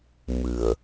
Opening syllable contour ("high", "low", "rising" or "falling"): low